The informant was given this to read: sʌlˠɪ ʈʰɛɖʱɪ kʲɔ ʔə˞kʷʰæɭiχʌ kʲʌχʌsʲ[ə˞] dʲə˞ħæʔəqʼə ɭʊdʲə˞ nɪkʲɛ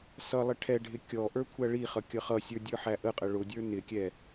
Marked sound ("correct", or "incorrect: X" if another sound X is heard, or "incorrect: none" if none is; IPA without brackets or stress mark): correct